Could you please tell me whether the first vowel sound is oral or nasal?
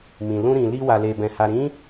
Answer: nasal